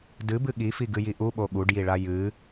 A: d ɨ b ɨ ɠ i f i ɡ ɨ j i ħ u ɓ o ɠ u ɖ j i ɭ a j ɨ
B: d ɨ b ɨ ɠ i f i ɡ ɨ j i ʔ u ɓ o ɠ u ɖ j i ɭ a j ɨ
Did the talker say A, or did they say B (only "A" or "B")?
B